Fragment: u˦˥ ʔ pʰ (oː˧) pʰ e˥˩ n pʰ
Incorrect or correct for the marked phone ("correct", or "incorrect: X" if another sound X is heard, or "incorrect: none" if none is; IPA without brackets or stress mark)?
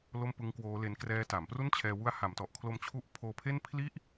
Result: correct